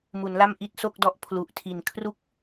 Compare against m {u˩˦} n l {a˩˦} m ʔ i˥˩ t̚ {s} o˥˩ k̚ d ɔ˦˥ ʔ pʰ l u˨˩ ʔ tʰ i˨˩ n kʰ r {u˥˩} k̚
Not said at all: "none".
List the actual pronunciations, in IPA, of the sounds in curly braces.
u˩˦, a˥˩, s, u˥˩

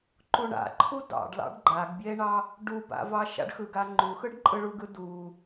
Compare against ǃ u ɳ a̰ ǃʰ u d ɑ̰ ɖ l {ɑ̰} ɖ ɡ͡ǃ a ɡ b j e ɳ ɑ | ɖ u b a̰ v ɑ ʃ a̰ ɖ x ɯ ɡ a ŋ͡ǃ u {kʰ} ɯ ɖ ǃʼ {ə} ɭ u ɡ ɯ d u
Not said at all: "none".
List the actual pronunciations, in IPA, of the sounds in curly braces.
ɑ̰, x, ɯ

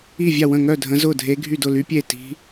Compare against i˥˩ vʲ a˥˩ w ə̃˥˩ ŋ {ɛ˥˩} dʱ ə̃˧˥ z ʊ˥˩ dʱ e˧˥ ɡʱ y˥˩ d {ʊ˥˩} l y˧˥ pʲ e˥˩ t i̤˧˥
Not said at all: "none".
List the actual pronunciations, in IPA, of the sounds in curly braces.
œ˥˩, ʊ˥˩

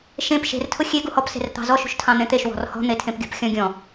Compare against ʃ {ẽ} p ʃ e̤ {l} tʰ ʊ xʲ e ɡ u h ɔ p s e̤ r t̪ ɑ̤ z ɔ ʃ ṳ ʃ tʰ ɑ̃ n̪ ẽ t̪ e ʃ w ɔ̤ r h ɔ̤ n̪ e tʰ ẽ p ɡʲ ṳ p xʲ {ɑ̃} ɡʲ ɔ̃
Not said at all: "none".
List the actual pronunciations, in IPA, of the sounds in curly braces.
ẽ, r, ɔ̃

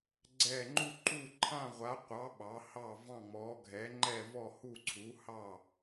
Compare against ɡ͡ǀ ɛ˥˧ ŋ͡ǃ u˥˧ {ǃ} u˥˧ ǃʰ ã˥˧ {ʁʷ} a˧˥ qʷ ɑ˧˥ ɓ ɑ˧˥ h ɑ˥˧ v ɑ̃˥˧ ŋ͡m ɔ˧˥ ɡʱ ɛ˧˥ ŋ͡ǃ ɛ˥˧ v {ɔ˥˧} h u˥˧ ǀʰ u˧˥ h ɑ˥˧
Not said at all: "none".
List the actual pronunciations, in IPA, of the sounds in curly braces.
ǃ, ʁʷ, ɔ˥˧

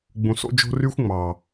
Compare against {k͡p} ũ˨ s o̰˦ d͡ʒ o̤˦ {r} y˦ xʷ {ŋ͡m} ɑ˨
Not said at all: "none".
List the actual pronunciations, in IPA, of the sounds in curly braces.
ɡ͡b, r, ŋ͡m

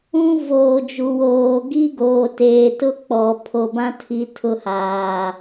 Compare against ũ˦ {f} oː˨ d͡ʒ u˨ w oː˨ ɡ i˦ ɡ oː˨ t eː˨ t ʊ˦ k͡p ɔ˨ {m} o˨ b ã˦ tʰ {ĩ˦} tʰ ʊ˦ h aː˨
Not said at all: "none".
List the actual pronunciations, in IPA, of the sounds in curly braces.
v, pʰ, i˦

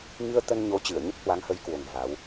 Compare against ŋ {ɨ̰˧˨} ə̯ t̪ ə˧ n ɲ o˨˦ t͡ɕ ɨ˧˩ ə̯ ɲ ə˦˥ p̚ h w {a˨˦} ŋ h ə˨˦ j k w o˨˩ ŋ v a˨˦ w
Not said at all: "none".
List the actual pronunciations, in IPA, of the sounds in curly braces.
ɨ˧, a˨˦

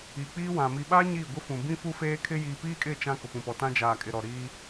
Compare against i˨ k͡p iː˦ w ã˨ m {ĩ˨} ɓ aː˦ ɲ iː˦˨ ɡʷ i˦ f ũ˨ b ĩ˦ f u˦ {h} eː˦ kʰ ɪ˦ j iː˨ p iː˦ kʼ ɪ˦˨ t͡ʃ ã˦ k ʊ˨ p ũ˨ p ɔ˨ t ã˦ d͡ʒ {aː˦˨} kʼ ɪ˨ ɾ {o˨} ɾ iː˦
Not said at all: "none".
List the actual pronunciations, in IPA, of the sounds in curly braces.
i˨, f, aː˨, ɔ˨

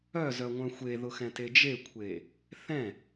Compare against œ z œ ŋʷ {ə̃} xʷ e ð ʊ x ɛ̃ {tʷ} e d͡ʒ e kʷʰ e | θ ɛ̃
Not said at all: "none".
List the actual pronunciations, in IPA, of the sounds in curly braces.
œ̃, t

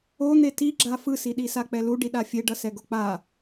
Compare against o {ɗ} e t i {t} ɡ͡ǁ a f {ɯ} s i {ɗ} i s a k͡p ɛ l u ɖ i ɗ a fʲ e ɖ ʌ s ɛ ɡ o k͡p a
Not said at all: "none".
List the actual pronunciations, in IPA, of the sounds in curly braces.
n̪, none, ɯ, ɗ

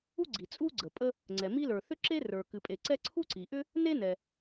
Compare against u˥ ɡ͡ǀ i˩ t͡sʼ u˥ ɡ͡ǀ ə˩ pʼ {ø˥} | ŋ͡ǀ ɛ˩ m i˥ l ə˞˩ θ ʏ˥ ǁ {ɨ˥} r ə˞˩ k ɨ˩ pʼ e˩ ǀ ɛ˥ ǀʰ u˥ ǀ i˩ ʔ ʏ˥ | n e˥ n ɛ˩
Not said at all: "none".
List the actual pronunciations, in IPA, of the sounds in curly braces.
ə˥, e˥

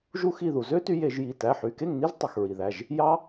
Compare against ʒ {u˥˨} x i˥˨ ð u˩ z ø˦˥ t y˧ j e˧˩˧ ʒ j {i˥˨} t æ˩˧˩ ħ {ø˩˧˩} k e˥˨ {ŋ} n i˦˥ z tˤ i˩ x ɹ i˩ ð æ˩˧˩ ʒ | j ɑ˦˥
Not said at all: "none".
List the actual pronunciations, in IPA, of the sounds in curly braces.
u˥˨, i˩˧˩, y˩˧˩, ŋ

